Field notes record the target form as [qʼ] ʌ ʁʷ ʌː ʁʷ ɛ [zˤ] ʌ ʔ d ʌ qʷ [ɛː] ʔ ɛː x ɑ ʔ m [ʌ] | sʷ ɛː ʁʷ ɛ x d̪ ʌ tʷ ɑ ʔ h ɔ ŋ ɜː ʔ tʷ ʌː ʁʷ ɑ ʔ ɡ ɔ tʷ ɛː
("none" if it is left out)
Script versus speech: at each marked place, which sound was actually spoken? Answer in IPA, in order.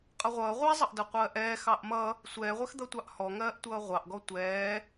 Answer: qʼ, zˤ, ɜː, ʌ

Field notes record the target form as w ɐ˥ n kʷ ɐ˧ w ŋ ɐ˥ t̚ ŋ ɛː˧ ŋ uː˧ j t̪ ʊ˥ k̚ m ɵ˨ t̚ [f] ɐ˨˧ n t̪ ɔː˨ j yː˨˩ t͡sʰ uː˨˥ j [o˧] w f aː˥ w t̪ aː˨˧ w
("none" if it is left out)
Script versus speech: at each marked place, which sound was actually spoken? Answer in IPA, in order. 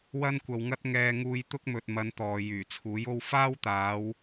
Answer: m, o˥

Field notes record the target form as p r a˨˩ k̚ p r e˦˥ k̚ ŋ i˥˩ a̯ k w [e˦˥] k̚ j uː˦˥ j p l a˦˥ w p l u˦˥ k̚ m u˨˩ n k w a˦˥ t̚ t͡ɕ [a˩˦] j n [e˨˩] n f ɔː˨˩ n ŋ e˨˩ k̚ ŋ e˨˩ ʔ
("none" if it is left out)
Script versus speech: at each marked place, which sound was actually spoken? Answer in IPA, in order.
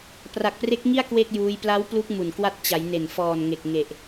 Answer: e˥˩, a˩˦, e˨˩

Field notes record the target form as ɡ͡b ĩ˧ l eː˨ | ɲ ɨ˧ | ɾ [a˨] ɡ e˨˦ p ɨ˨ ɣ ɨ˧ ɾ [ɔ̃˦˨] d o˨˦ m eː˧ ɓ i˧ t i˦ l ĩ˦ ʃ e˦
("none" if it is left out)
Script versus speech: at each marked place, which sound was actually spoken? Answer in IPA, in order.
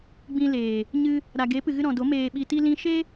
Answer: a˨, ɔ̃˨

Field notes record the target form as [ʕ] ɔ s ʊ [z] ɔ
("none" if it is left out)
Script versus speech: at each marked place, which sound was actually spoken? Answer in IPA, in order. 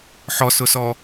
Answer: ħ, s

